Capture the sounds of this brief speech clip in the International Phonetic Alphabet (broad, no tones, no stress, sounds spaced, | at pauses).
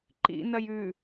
ǃ ḭ n ɐ j ʉ